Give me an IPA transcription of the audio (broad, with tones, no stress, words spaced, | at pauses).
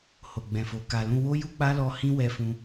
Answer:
ho˨ɡ͡bɛ̃˨fo˨ ka˨lũ˧wo˦ ju˦k͡pa˦lɔ˧ hĩ˦wɛ˧fũ˧